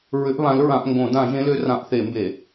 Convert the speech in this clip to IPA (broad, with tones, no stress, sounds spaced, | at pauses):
ɹ ʏ˨˦ ʔ β ã˨˦ l ɹ ã˧˩˧ ʔ ŋ ɡ õ˧˩˧ d ã˧˩˧ ʒ ẽ˨˦ l ʏ˨˦ r ã˧˩˧ ʔ θ e˧˩˧ m b e˧˩˧